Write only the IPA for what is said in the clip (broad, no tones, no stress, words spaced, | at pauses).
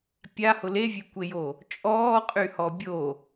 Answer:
pʲahʊ levʲekʷejo | t͡ʃʼɔːqʼyhɔ bʲo